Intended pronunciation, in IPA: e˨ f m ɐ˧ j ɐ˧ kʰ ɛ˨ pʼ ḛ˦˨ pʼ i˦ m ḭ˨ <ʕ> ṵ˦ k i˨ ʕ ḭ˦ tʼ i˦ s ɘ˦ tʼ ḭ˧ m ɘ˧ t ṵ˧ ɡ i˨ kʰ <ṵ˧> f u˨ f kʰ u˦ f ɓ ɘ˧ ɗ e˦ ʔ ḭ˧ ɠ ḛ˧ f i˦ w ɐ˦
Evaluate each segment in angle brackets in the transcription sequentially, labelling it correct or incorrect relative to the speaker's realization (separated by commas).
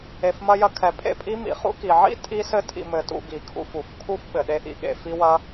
incorrect, correct